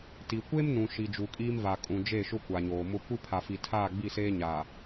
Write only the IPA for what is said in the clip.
t i˨ kʷ e˦ m n ũ˨ ʃ i˨ d͡ʒ u˨ kʼ iː˦ m v a˨ kʼ ũ˨ d͡ʒ e˦˨ ʃ ʊ˦ kʷ a˨ ɲ oː˨ m ʊ˦ kʷ i˦ pʰ a˨ f i˨ tʰ aː˦˨ ɡ͡b i˦˨ s eː˦ ɲ a˨

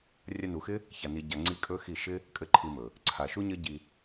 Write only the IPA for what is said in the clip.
rʲ a˧ n u˨ x ɪ˦ | ç a˨ n i˨ ɟ a˨ ŋ͡ǀ i˦ kʼ ɵ˦ x i˦˨ ʃ ɪ˦ | kʼ ɘ˦ ǃʰ i˧ m ɵ˨ | ǀʰ a˨ ʃ u˦ ɲ ɘ˦ ɟ i˧

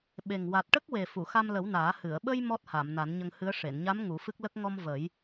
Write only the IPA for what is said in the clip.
ɓ e˨˩ ŋ w a˨˩ t̚ ʈ ə˦˥ k̚ w e˨˩ f u˨˩˨ x a˧ m l ə˨˩˦ w n aː˨˩˦ h ɨ˨˩˨ ə̯ ɓ ə˧ j m ɔ˦˥ t̚ h a˨˩˨ m n a˨˩˦ n ɲ ə˧ ŋ h ɨ˧˥ ə̯ ʂ e˨˩˨ n ɲ a˧˥ m ŋ u˨˩˦ f ɨ˦˥ k̚ l ə˦˥ k̚ ŋ ɔ˧ m v ə˨˩˦ j

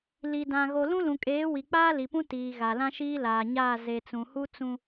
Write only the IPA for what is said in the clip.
l i˨ d ã˨ ɣ o˨ l ũ˦ l ũ˨ kʼ eː˨˦ w i˨ k͡p aː˦ l i˨ p ũ˦ t iː˨ ɣ a˨ l ã˦ ʃ iː˦ l aː˨ ɲ aː˦˨ z e˨ t͡s ũ˨ h u˦ t͡s ũ˦

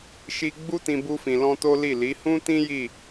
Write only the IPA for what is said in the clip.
ʃ i˦ ɡ͡b u˦ t ĩ˧ b u˧ f ĩ˨ l ɔ̃˧ t o˦ l i˦˨ l i˨˦ h ũ˦ t ĩ˦ j i˦˨

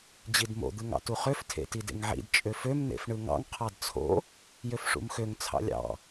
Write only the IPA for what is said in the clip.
d͡ʑ i d m o̰ d̪ ɯ ŋ ɑ̰ t u χ ø f tʰ ḛ t i d ḛ ŋ ʕ ḭ d t͡ʃʼ ø f ø m n̪ ḛ f ɳ ɯ ŋ ɑ̰ ŋ qʰ ɑ d t͡sʰ o̰ | j ø f ʂ ṵ m x ø ŋ t͡sʰ ɑ̰ lʲ ɑ̰

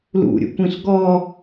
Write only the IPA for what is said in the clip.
l ṵ ɾʲ ṵ kʷ ĩ ɬ ɡ ɔ

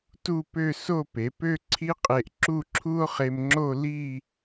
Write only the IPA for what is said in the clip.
t u˥˧ p ø˥˧ s o˥˧ p e˩˧ p ø˥˧ ǀʰ i˥ qʼ e˧ ʔ ǁ u˥˧ ǁʰ u˥ o̯ χ e˧ m ŋ͡ǁ o˥˧ l i˥˧

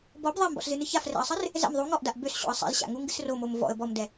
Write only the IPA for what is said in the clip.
b ɔ b ðˤ ɛ m b ɔ̰ s z ɨ n ɨ ç a f r ɛ̰ ə̯ sˤ ɨ r | z ɛ̰ m ðˤ u ŋ ɔ ʔ d a ʔ b ø s ɕ o̰ ə̯ sˤ ḭ z ɕ a̰ ŋ u ŋ ɡ ɨ s r o m o m v ɔ̰ ə̯ b ɔ m d ɛ

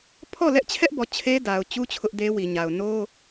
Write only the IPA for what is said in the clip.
pʰ ɔ˦˨ l ɛ˦ ʔ t͡ɕʰ ɛ˦ ʔ b ɔ˨ t͡ɕʰ e˦ d a˨ ʊ̯ t͡ɕ u˦ t͡ɕʰ ʊ˦ ʔ d e˦ w i˨ ɲ a˨ ʊ̯ n o˦

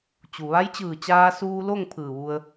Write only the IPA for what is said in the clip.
t͡ɕ u˩ ʋ a˧˥ j t͡ɕ ɯː˧˩ t͡ɕ aː˧ s uː˧ l o˥˨ ŋ pʰ ɯː˧˩ ʋ u˧ ə̯

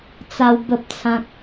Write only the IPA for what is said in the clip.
t͡s a˦ w b ə˦ p̚ t͡sʰ ã˦ k̚

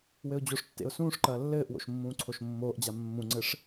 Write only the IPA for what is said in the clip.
w ɘ ʊ̯ d͡ʑ o ʂ tː ḛ ʊ̯ s ũː ʂ ǃ ɐː lː ɘː ʔ w o̰ ʃ mː ũː ǀʰ o ʃ mː oː ʔ d͡ʑ a mː ũ ŋ͡ǀ ɘ ʂ

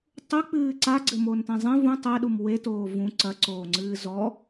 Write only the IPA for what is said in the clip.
tˤ u k͡p ɨː ǀ a ɡ͡ǀ ɘ m o n t ẽ zˤ ẽ v ũ tˤ ɛ ɗ u m w e t oː v ũ ǀ ɐ ǀ oː ŋ͡ǀ ɨː z ɔ

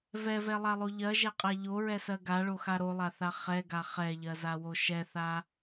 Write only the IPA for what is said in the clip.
v ɛ v ɛ lˠ a lˠ o ʎ ɜ ʒ ɛ qʼ a ʎ o ɹ ɛ s ɜ ɡ a ɭ o x a ɾ o lˠ a θ a χ ɛ ɡ a χ ɛ ʎ ɜ z a w o ʃ ɛ θ a

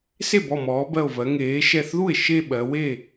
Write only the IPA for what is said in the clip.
s e˥˩ b ɔ˧˩ m ɔː˩˧ b ɜ˧˩ o̯ v ɜ˩˧ ŋ eː˩˧ ʃ ɛ˧˩ θ ð u˥˩ e̯ ʃ e˥˧ ɓ ɜ˩˧ w e˥˩

